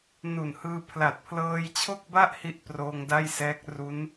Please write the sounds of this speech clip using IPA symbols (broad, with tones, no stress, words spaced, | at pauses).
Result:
nu˨˩nhɯː˧pʰla˨˩t̚ pʰlɤː˧jt͡ɕʰo˥˩k̚ba˥˩ʔ hi˥˩ʔproː˧ŋda˥˩jsɛː˦˥k̚ ru˦˥n